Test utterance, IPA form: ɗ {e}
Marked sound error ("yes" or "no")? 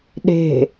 yes